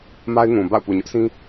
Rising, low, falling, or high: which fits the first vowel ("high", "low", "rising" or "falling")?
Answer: high